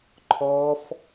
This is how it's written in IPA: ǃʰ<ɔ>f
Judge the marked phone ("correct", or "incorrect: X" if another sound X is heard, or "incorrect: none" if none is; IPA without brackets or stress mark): correct